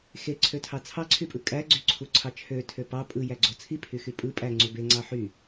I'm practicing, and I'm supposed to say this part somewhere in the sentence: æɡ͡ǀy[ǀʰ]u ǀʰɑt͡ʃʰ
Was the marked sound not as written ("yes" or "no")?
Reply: no